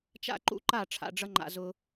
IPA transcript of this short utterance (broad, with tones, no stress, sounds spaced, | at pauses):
t͡ʃ a̰˦ ǃ ṵ˦ ǃ a˦˨ ʈ͡ʂʰ a̰˨ ɖ͡ʐ ʌ˦ ŋ͡ǃ a̰˧ z ʊ˧